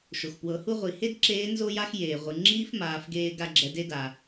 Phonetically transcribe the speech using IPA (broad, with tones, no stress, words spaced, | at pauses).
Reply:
ʃo˩xpwɤ˩˧hu˥ʁʷi˩˧ he˥dǁeː˧˥ nzo˥ja˥x jeː˩ʁʷɯ˩ ŋ͡ǁiː˥fmaː˩˧fɡeː˧ ɡa˧ɡ͡ǁɛ˩˧de˧˥ daː˩